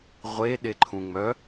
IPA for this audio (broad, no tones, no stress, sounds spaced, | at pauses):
ʁʷ e ɗ e ǃʰ ũ ŋ͡m œ